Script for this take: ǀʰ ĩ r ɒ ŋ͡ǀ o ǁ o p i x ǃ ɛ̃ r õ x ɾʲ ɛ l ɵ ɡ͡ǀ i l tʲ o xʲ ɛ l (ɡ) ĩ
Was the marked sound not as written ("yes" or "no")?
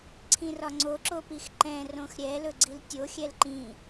yes